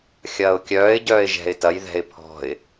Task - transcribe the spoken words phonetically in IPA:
xʲɐːʊ̯kʲœːɪ̯ɟœːɪ̯ ʒɛ̤ɪ̯tɐjðɛ̤ɪ̯ pʰɔ̤ɪ̯

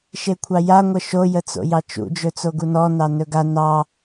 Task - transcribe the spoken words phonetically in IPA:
ʃekʷʰɑja ŋʷəʃo jət͡so̰jɑt͡ʃṵ d͡ʒɵt͡soɡunɔ nɑnɵɡa nɑ

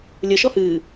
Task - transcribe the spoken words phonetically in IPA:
lʲə ʃɔhɨː

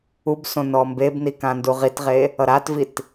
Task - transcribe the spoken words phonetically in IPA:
ubsõ nɔmbebni kãnduʁitʁe | ʌɾatvit

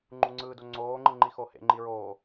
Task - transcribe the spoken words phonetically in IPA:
ŋ͡ǃuŋ͡ǀɯːdo ŋ͡ǀoːŋ͡ǃɯ ŋ͡ǃixohḛŋ͡ǃi ɹoː

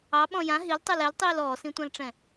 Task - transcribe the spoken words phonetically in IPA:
ɑɓɔ̃ jã ɦiltˤɛl ɛltˤiːl ɔːsĩtʷãlʈ͡ʂɛ̃

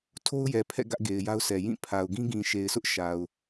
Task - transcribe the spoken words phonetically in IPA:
tʰo˦ʊ̯jɛ˨pʰɛ̰˦˨ ɡä˦ʔɡe˨ɪ̯ja˦ʊ̯sɛ˨ jĩ˦˨pʰa˨ʊ̯ ɡĩ˦ɡĩ˨ʃe˨ɪ̯sʊ˦ʔ ʃa˨ʊ̯

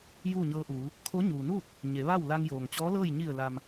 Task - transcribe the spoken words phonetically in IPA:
juː˥˨ɲɤː˧ʔuː˩˧ | kʰo˧˥ɲuː˩nuː˥˨t̚ | ɲe˩˧ʋa˥˨w la˧ŋjoː˩ŋt͡ɕɔː˧˥lɤː˥˨j ɲi˧˩ə̯la˩m

